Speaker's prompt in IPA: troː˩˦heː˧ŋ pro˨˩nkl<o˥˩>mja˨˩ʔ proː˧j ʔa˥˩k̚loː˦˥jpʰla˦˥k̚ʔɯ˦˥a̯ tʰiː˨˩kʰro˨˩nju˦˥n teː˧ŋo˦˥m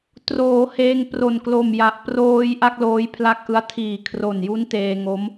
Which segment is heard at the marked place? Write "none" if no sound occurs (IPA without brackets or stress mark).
o˨˩